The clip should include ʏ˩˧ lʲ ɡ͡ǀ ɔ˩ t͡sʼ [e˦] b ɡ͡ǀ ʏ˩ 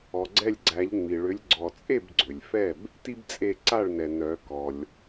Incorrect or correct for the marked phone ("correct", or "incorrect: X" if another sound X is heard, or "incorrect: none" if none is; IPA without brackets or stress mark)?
incorrect: e˥˩